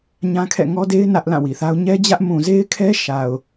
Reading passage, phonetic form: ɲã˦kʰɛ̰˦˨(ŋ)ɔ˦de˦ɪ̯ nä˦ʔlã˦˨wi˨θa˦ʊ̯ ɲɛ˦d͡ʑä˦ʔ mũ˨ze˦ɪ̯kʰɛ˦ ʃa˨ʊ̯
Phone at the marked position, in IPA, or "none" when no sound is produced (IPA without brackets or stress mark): ŋ